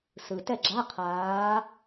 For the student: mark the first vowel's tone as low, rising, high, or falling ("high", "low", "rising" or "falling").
low